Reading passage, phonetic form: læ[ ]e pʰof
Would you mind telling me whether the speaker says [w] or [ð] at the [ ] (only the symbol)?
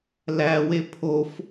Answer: w